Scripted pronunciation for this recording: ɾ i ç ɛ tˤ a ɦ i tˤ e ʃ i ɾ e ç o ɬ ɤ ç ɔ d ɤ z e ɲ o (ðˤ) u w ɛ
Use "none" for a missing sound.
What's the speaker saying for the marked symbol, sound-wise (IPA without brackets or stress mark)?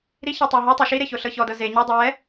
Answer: dˤ